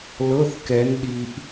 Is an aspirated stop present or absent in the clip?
absent